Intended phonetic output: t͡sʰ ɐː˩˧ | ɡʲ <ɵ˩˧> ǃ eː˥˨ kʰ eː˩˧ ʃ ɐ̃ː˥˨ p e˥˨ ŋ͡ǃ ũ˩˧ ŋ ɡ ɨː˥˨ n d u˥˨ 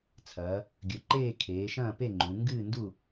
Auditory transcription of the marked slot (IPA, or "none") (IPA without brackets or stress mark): ɵ˩˧